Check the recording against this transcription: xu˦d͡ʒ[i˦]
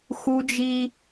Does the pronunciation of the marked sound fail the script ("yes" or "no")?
no